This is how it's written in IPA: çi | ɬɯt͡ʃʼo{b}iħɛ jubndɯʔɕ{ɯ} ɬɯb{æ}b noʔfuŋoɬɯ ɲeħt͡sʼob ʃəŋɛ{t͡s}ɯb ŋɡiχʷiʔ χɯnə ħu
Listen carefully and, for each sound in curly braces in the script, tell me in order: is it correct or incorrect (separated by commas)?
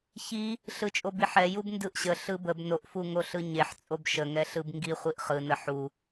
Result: correct, incorrect, incorrect, incorrect